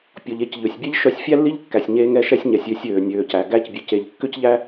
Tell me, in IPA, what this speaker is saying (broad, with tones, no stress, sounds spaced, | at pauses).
pʲ ɔ˩ ʎ e˧ c ʎ ø˩ sʲ bʲ ɛ˥ ʎ ʃ œ˥ sʲ fʲ æ˥ lː i˥ ʎ kː æ˩ sʲ ɲ eː˧ ŋ ɛ˧ ʃ ɛ˧ sʲ ɲ ɛ˩ sʲ ø˧ sʲ øː˩ nʲ øː˩ c æ˩ ɡ æ˧ c bʲ ø˩ c e˩ ʎ kː ʏ˥ c ʎ æ˥